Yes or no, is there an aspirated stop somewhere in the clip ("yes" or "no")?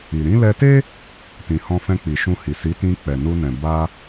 no